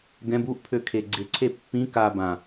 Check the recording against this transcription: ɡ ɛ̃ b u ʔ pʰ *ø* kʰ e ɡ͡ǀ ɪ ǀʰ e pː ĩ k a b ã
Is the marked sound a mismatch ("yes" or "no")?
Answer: no